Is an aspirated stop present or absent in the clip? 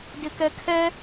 present